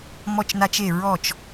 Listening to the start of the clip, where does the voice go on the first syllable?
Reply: falling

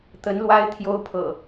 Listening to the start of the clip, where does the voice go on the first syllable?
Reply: rising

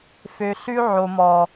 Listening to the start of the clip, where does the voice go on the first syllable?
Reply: low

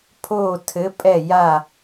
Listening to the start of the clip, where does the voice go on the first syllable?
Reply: falling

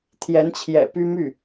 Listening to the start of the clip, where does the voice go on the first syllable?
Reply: rising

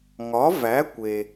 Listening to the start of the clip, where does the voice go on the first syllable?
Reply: rising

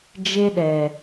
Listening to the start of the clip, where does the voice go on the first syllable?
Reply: high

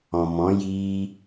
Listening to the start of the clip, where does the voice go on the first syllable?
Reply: low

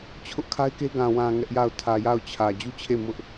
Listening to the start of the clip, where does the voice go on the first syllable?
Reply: high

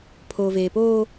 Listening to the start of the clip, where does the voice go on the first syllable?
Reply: low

